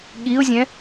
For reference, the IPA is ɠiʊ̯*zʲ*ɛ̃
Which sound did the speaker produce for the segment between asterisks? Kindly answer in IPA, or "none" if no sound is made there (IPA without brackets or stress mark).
zʲ